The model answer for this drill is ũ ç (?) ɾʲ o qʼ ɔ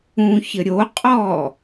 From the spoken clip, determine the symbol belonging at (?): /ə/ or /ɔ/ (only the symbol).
ə